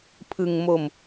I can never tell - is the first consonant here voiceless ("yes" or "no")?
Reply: yes